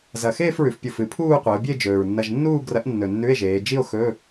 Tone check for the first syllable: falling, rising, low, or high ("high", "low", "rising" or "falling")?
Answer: low